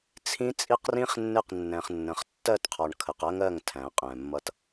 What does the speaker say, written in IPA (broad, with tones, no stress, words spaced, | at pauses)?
t͡sʰĩ˦t͡sʼi˦qrĩ˦χnːɪ˦˨q nːɛ̃˨χnːə̃˨χ tːɜ˦˨tqʰɒ˨ɳ kʰə˨qɜ˦ŋɜ˦˨ŋ tʰæ̃˨˦ qʼɛ̃˨mːʌ˦t